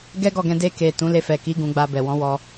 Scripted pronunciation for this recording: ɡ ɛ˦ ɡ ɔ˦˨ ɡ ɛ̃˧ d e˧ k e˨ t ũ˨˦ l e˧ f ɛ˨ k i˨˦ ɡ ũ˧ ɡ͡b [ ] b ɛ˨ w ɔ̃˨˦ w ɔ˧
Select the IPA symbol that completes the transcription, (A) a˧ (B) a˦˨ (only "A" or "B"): A